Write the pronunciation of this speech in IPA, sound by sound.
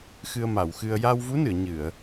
x ɨ˧ ə̯ m a˨˩˨ w x ɨ˧ ə̯ j a˧ w v u˧˥ n ɨ˨˩˨ ə̯ ɲ ɨ˨˩˨ ə̯

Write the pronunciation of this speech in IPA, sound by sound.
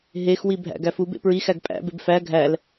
ɦ e x w i bʱ æ̰ ɡ æ f u b ḛ p ɹ i x æ ɡ pʼ æ̰ b e b f æ ɡʱ æ l

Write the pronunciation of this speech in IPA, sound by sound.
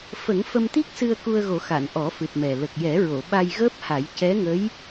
f ə˨˩˦ ŋ f ə˧ m t̪ i˦˥ k̚ s ɨ˧ ə̯ k u˧ ə̯ ɣ o˨˩˦ x a˨˩˨ n ʔ ɔ˨˩˦ f ɨ˨˩ t̚ m ɛ˨˩ l ə˨˩ k̚ j ɛ˨˩˦ ɹ o˨˩˨ ɓ a˧ j ɣ əː˦˥ p̚ h a˨˩˦ j c ɛ˧˥ ŋ ə˧˥ j

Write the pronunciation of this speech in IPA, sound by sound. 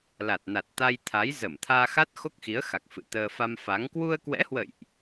l a˨˩ t̚ n a˨˩ t̚ t̪ a˧ j t̪ʰ a˨˦ j z ə˧˩ m t̪ʰ aː˧ x a˦˥ t̚ x o˦˥ k̚ x i˨˦ ə̯ x a˨˩ k̚ f ɨ̰˧˨ t̪ əː˧ f a˧ m f a˨˦ ŋ k w u˧ ə̯ k w ɛ̰˧˥ h w ə̰˧˨ j ʔ

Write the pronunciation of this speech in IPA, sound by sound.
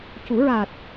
c u˨˩˦ ɹ a˨˩ t̚

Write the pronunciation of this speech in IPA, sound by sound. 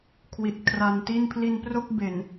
kʰ w i˨˩ t̚ kʰ r a˧ n t i˥˩ n pʰ l i˧ n p r o˥˩ k̚ b e˨˩ n

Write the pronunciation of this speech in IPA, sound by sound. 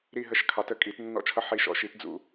ɾ i˦˨ ɦ ə˦˨ ʃ kʰ ɑ˨˥ t ə˦˨ kʼ i˨˩˦ t nː ɔ̰˦˨ t͡ʃʰ ʌ˦˨ ħ i˦˨ ʃ ɔ̰˨˥ ʃ i˨˥ t d͡z ṵ˦˨

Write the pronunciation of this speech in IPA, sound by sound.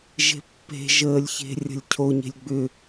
ʒ e̤ pː e̤ ʒ əː lʲ ç e̤ rʲ ə̤ lʲ cʰ o ɲ e̤ lʲ ɡ͡b ʏ

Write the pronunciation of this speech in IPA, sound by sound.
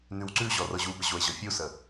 n ʉ w ǀ ʉ ʑ ɔ r ɤ ʑ u b ə ʑ o e̯ ʑ ɤ fʲ u s ə

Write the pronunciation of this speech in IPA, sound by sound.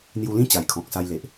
n̪ j u˧ l ĩ˥˧ t͡ɕ a˨˩ j kʰ ɔ̃˨ k̚ s a˧ j l e˨ ʔ

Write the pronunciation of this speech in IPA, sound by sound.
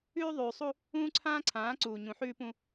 ʉː˦ ðˤ ʉː˨ sˤ u˦ | ũː˦ ǀʰ ãː˦ ǀʰ ãː˨˦ ǀ uː˨ ɲ ũ˨ ħ ʉː˦ p ũ˦

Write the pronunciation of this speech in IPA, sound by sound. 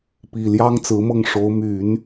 p i˨˩ l j ɑ˥ ŋ t͡s ɹ̩˧˥ m ɤ˥˩ ŋ ʂ o˧˥ ʊ̯ m y˨˩˦ n

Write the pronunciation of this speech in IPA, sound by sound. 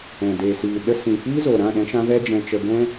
ɛ̃˨ d eː˨ s iː˨ ɗ ə˧ s ĩ˨ f iː˦ z o˨ ɾ ã˦˨ ɗ ɛ̃˧ ʃ ã˧ v ɛ˦ d͡ʒ ɛ̃˧ t͡ʃ ə˧ ɡ ɛ̃˦

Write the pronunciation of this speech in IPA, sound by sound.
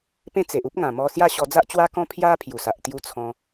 p ẽ˥˧ t͡s e˨ ʔ u˦ p̚ ŋ ã˨˩ m ɔ˧ s j a˥˧ ɕ ɔ˧ d͡z a˦ ʔ t͡ɕ w a˦ k ɔ̃˦ pʰ j a˦ pʰ j u˨˩ s a˨ ʔ t̪ j u˦ t͡sʰ ɔ̃˧

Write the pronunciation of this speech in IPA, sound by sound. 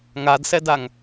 ŋ a d s ɛ d a ŋ

